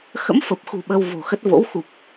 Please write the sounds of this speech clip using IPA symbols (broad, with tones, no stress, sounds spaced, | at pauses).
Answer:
x ə̰˧˥ m f ə˨˩ p̚ x ṳ˨˩ ɓ ə˧ w v o̤˨˩ x ə˦˥ t̚ v o̰˧˥ w x u˨˩ p̚